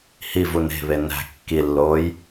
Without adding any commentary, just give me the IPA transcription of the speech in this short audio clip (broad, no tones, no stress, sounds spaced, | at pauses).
h i v u n e̤ β e n æ̤ kː i lː oː j